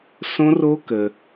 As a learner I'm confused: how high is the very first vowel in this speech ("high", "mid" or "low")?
mid